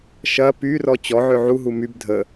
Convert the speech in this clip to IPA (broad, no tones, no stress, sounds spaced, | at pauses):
ʃ ɐ p y r ɔ t͡ɕ ɔ ʕ ø ʕ u ɦ u m y b dʱ ə